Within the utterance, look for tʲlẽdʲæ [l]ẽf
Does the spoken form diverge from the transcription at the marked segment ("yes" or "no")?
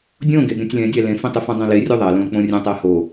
no